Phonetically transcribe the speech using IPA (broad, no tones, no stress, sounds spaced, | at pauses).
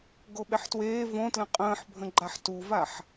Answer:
ɡ o ɓ e ħ t w eː v õ t l ə̃ qʼ ə̃ː ħ bʱ ə̃ ɡ͡ǃ a ħ t u v a ħ